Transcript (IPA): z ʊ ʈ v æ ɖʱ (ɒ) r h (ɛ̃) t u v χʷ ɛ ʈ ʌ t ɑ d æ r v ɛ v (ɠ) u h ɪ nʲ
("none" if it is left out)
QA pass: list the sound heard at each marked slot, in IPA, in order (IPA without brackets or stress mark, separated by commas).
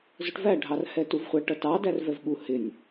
ɑ, ɛ, ɠ